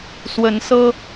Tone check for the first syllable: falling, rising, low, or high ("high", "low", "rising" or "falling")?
rising